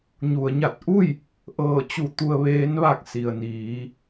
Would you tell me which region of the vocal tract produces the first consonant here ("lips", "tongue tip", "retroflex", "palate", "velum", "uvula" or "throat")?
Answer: palate